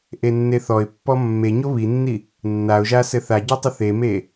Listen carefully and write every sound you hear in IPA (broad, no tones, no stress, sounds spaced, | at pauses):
ʔ e nː e θ ɔ ɪ̯ pː ɔ mː e ɲ o β i nː i | nː a ʊ̯ ʒ a s ɘ θ a ɟ a tˤ ɘ θ e m e